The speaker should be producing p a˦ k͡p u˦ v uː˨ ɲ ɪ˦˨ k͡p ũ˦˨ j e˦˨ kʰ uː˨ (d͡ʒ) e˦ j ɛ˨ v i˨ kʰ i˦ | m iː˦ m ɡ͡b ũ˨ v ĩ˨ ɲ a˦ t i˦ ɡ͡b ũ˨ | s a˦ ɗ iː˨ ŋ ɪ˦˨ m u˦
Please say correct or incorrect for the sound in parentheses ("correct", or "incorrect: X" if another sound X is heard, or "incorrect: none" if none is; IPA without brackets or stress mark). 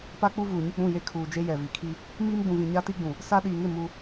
correct